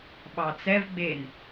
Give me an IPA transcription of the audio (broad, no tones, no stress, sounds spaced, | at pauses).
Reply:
ɓ ɑ t͡s ɛ v ɡ͡b e n